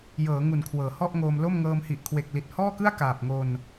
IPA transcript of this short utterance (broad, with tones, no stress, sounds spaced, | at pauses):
j ɤː˩˦ ŋ u˨˩ n kʰ w ɤː˨˩ h ɔ˥˩ ʔ ŋ oː˧ m l o˥˩ m ŋ ɤː˧ m h i˨˩ ʔ kʰ w e˨˩ k̚ l i˨˩ t̚ h ɔː˥˩ k ɯ˥˩ a̯ k aː˨˩ p̚ ŋ o˧ n